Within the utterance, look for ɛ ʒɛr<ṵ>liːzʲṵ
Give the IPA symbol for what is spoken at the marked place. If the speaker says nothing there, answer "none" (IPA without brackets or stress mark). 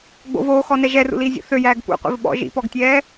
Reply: ṵ